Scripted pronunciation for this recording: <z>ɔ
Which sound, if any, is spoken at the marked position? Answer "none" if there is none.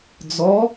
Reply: d͡z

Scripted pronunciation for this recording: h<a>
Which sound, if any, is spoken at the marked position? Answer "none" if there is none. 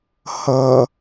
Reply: ʌ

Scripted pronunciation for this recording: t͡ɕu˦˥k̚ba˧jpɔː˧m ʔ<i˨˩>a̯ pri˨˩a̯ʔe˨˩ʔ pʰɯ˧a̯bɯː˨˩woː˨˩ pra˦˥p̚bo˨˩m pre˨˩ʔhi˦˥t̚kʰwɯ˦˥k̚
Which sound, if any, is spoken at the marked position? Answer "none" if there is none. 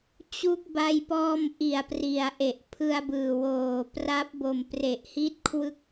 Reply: i˨˩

